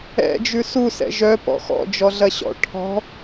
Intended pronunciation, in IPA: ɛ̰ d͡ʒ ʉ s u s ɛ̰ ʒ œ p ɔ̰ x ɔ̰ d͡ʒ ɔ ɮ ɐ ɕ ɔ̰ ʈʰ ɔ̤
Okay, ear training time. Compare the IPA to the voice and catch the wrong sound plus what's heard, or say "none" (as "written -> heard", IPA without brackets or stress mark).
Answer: none